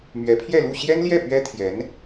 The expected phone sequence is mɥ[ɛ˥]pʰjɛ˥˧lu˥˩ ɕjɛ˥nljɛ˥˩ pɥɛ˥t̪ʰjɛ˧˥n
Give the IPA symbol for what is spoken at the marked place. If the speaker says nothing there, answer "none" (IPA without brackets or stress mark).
ɛ˧˥